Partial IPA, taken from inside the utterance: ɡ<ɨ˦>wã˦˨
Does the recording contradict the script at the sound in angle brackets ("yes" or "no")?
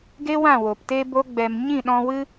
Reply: yes